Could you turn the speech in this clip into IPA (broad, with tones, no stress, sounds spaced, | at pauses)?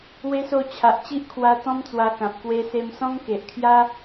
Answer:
w e˧ s o˧ t͡ɕʰ a˨ ʔ t͡ɕ i˦ ʔ kʰ w a˧ t̪ ɔ̃˦ m t͡s w a˧ k ã˨ p̚ k w e˧ s e˧ m s ɔ̃˦ ŋ k e˨ ʔ kʰ j a˦